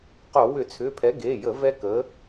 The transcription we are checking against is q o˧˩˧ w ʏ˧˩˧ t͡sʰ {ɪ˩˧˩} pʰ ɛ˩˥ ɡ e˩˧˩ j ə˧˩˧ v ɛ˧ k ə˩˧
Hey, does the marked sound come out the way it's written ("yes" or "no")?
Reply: no